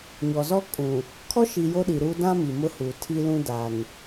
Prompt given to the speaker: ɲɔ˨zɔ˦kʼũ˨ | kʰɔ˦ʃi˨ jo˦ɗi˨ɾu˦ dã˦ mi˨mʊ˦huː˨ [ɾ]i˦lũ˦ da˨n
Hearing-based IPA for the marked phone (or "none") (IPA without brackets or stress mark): tʰ